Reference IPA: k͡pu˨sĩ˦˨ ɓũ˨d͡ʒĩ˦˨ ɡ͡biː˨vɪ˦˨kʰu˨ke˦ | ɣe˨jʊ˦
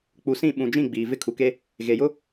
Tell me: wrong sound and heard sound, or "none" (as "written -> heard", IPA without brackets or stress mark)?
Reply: none